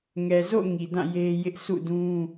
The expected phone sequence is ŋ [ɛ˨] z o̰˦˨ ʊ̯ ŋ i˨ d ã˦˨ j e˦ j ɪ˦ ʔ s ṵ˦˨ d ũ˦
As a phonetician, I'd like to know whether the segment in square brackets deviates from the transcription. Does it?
no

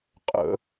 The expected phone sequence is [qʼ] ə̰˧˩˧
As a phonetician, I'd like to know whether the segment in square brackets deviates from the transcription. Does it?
no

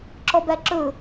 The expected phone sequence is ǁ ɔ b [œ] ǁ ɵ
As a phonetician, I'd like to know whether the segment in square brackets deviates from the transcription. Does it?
yes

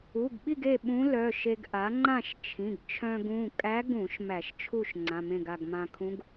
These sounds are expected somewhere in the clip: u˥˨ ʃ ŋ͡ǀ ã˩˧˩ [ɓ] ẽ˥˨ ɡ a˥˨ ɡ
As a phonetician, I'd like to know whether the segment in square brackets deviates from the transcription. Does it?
yes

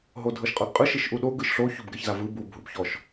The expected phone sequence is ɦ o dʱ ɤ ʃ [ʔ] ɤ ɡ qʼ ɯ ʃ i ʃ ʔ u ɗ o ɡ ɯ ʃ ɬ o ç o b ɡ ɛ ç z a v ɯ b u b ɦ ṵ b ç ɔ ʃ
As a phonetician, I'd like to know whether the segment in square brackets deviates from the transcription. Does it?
yes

